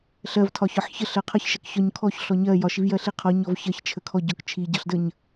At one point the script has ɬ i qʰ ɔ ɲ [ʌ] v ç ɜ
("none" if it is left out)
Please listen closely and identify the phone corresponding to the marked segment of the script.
ɔ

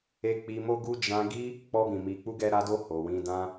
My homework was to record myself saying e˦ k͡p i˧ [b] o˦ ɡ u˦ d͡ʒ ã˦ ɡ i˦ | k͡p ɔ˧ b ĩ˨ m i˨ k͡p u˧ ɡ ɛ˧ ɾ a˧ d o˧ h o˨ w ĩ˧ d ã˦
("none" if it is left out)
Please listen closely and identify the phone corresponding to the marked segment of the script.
m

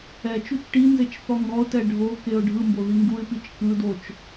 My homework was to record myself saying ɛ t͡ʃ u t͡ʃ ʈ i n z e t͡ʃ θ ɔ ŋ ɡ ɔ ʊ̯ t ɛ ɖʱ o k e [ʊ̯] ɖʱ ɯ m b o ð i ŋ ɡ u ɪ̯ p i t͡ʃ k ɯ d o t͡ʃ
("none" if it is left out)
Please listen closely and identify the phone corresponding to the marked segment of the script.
ʊ̯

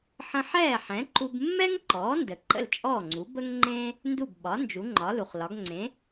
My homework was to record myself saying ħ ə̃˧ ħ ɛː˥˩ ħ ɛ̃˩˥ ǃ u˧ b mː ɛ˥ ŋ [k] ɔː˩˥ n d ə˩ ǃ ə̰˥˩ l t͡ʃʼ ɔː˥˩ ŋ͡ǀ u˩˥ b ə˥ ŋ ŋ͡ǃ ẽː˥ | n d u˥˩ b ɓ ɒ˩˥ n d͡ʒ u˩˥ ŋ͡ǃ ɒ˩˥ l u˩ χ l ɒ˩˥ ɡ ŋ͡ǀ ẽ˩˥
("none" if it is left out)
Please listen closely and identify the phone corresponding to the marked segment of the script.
ǃ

